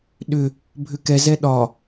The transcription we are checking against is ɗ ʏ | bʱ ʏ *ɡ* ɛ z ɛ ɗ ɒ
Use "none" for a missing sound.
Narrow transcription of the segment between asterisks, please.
k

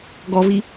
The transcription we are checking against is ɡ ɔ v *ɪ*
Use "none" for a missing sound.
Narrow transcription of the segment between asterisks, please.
i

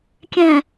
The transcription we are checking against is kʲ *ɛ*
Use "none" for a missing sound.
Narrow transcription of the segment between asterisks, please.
ɛ̃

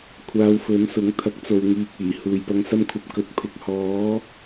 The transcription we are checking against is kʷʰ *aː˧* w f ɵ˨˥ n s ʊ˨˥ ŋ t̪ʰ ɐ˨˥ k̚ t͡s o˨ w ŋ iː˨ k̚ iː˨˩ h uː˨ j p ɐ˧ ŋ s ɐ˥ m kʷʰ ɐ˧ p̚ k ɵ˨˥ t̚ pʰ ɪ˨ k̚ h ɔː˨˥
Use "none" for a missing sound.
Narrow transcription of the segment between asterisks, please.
aː˧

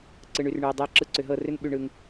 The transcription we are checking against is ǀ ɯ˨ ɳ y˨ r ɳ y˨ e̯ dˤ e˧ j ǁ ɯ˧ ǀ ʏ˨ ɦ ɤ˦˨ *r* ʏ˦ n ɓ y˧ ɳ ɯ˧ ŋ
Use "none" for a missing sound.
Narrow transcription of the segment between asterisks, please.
r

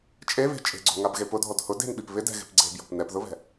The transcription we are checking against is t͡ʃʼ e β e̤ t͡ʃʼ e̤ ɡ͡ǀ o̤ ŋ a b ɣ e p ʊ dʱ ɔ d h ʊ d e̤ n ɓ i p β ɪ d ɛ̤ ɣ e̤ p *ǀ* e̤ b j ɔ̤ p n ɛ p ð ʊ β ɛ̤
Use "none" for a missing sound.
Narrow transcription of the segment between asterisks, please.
ɡ͡ǀ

